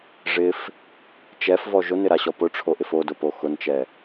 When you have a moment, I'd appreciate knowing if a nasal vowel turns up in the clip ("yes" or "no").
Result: no